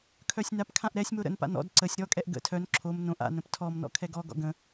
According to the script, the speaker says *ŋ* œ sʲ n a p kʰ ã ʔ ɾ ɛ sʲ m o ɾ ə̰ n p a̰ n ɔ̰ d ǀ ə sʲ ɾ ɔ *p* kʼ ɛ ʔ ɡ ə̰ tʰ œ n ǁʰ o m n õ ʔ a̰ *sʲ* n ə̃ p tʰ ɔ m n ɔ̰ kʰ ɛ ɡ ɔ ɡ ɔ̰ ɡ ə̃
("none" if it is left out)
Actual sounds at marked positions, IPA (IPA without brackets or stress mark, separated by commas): kʰ, none, none